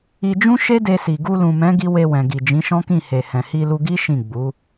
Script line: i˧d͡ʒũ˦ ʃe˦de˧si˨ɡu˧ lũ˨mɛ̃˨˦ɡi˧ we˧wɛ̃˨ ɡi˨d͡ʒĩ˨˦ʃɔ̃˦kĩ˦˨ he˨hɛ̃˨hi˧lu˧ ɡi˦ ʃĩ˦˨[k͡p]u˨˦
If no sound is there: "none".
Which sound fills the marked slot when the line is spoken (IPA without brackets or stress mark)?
ɡ͡b